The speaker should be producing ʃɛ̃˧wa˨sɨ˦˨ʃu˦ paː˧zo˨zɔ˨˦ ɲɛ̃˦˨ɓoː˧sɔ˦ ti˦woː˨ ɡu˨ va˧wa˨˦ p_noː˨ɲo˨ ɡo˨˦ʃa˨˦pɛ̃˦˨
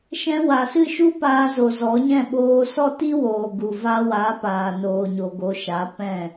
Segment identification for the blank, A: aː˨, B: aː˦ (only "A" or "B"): A